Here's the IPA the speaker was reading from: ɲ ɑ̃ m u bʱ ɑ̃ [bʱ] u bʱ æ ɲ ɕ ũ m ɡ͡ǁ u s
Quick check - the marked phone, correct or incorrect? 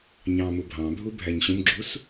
correct